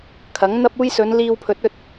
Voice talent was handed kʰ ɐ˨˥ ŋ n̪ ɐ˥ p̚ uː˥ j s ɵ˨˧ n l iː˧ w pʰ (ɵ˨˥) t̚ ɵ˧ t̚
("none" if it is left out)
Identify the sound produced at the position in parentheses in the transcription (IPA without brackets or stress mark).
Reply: ɵ˨˥